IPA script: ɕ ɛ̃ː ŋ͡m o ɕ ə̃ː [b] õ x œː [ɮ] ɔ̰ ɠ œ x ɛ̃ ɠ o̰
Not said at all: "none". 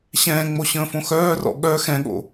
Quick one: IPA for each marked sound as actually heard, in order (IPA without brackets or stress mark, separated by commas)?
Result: f, r